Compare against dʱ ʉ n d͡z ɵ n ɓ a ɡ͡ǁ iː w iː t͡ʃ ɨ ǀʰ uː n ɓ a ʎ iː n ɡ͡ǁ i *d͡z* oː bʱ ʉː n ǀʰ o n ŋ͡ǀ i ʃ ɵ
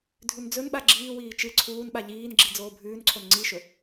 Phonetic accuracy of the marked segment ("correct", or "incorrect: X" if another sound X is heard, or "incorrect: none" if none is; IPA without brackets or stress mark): correct